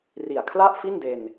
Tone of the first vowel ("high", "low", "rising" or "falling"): low